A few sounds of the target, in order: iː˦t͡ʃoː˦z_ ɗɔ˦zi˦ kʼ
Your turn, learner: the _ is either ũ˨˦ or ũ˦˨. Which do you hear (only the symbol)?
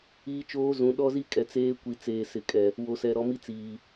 ũ˨˦